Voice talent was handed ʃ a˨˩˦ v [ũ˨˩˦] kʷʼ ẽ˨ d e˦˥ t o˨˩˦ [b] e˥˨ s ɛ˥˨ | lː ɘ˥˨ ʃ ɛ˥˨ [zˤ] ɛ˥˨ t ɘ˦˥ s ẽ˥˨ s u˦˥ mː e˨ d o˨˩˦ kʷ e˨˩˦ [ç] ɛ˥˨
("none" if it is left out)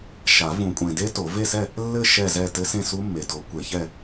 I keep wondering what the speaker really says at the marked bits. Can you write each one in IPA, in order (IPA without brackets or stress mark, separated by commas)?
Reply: ũ˨˩˦, v, z, ç